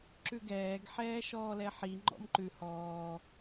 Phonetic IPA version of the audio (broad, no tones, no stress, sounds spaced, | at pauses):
ǁ ʉ ɡ ɛː ɡ ħ ɛː ʃ ɔː l ɛ ħ i ŋ͡ǃ ɔ̰ m ǃ ʉ h ɔː